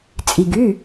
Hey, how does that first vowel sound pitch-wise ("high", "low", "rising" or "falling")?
low